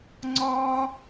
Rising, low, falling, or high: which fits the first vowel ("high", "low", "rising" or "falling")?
high